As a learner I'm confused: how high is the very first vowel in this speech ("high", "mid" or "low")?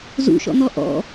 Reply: high